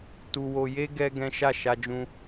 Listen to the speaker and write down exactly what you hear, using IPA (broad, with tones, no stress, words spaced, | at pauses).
tu˧wo˧je˦ ɡɛ˦ ɡɛ̃˦ ʃa˦˨ ʃa˧d͡ʒũ˧